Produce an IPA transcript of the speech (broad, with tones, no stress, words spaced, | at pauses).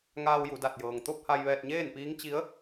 ŋaː˧wju˩˧ da˧˩t̚jɤː˩ŋ t̪o˥˨p̚ ha˧jʋɛː˧t̚ɲeː˥˨npiː˧˥ŋ t͡ɕi˧˥ə̯